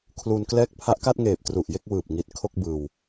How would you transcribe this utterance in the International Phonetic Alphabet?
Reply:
kʰlu˧nklɛː˥˩k̚ pʰa˦˥ʔka˥˩t̚ŋeː˨˩p̚ tru˨˩ʔje˥˩k̚wɯː˨˩p̚ŋi˨˩t̚ kʰo˥˩k̚bɯː˧w

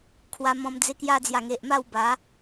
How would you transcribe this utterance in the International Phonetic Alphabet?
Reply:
kʰwa˧mɔ̃˧m d͡ze˧kja˧d͡zja˨˩ŋe˨ʔ ma˥˧wba˨˦

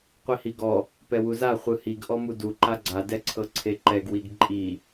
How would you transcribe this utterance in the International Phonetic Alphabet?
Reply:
qʷihiɡɔ | pɛwuza χʷɯhiɡ ʔɔmudu ǃaɡ͡ǀa dɛǀʰɤǀʰeǃɛɡ wiɡǃʼi

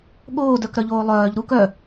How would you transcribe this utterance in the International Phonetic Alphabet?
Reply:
ɠoːdœkɾœʎoː lˠœːʎ ɾuk œ

